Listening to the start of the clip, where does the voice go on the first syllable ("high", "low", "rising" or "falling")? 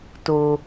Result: low